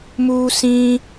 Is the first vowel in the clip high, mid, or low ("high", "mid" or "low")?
high